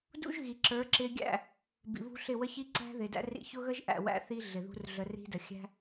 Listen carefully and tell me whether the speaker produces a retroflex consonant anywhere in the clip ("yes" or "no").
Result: no